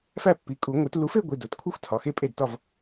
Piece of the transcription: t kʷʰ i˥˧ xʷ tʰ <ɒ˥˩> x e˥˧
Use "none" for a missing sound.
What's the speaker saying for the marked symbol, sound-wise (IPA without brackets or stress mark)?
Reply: ɒ˩˧˩